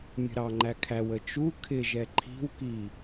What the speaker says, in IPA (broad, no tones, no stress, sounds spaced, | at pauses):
mʲ ə̤ ɾ ɑ ŋ͡ǃ æ kʰ æ w ə t͡ʃ u kʰ ɪ ʒ ɛ ǃʰ i̤ w k i